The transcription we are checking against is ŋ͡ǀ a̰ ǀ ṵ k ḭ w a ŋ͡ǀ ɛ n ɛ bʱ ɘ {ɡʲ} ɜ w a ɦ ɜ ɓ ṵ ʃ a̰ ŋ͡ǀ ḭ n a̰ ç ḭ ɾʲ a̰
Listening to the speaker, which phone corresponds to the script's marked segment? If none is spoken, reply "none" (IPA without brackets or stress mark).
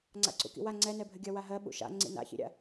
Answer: ɡʲ